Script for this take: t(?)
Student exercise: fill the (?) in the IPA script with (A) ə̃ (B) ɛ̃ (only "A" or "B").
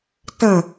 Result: A